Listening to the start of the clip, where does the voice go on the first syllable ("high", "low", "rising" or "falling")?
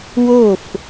falling